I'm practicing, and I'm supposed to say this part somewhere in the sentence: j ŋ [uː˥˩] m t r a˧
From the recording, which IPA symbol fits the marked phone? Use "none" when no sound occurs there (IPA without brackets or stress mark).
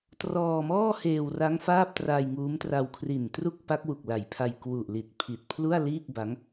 uː˦˥